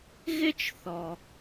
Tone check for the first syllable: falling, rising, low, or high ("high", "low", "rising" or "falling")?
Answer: high